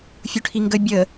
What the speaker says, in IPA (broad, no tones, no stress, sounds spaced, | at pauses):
fʲ u ʈʰ i ŋ ɡ ə bʲ ə